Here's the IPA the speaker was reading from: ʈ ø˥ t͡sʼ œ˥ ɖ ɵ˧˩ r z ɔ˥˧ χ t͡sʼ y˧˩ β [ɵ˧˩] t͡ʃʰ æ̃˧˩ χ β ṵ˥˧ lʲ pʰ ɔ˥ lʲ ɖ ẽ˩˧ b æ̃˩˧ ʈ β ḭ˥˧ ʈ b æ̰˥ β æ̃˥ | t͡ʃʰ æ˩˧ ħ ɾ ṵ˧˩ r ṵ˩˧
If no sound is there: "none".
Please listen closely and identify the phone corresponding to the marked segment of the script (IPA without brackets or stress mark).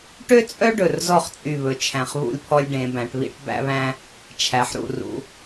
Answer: ɵ˧˩